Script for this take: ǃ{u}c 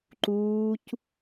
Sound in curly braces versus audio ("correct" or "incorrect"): incorrect